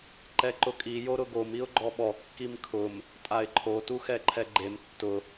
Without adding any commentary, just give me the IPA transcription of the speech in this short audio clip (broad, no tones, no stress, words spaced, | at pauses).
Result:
ǃɛǃʊkʼi joɾʊɡom iʊ̯ɡ͡ǃɔɓɔ kːimkʰʊm | tʼaɪ̯ǃʰo tuxɛǃʰɛɡ͡ǃem tːʊ